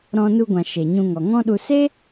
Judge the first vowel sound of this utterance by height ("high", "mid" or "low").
mid